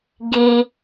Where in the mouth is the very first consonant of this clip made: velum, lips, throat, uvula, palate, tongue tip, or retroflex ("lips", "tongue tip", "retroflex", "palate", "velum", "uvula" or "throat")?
velum